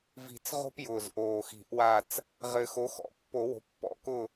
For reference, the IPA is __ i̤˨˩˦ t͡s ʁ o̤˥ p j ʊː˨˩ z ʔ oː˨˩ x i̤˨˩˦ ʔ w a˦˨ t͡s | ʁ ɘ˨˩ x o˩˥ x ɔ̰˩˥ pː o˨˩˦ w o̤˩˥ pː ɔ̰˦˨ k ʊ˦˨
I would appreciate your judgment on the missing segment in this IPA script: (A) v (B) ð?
A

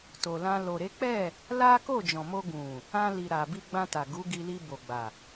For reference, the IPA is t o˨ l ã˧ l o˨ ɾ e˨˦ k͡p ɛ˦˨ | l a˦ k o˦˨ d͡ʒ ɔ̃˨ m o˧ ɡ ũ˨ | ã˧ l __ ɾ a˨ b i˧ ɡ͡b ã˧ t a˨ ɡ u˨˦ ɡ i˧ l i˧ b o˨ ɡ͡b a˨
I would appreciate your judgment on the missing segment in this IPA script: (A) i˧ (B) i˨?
B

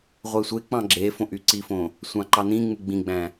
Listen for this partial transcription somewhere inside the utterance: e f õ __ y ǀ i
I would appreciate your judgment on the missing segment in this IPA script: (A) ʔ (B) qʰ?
A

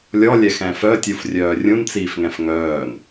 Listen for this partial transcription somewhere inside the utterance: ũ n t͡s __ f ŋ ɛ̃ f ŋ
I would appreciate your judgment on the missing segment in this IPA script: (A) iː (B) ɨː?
A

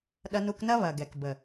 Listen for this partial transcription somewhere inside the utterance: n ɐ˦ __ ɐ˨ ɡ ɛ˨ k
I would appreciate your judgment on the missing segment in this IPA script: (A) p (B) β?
B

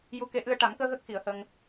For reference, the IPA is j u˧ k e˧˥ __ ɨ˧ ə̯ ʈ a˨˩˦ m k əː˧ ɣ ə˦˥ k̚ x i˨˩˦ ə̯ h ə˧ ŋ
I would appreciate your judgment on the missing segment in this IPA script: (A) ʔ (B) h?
A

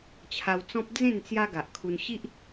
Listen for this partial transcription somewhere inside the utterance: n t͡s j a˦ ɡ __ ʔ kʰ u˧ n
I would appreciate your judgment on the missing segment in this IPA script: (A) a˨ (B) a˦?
A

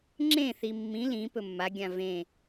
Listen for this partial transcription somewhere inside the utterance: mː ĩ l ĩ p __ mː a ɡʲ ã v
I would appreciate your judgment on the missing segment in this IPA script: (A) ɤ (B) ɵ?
B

